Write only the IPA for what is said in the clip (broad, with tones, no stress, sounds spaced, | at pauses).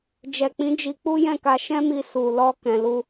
d͡ʒ ɛ˨ k͡p ĩ˨˦ d͡ʒ i˧ k͡p u˦ j ɛ̃˦˨ k a˧ ʃ ɛ̃˦ m i˧ s u˨ l ɔ˧ k ɛ̃˧ l u˦